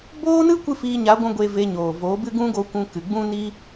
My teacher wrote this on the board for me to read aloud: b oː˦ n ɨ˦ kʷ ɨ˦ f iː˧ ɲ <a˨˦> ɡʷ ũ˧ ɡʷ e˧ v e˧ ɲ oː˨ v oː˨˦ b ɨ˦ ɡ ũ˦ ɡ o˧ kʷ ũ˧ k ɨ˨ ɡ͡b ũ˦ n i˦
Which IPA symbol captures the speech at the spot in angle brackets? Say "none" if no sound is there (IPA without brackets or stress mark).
a˨˦